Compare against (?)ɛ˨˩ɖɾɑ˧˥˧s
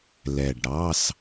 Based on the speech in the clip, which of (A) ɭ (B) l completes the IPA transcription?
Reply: B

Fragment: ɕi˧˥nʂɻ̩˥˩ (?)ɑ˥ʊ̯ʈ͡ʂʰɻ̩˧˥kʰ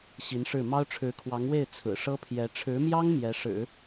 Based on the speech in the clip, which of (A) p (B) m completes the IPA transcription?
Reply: B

